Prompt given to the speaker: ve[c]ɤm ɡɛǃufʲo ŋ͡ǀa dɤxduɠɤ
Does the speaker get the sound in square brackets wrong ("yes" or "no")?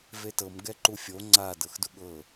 yes